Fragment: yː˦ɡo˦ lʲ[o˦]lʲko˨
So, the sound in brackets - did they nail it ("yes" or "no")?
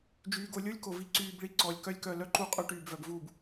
yes